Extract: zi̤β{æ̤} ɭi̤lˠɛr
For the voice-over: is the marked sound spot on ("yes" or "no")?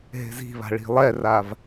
no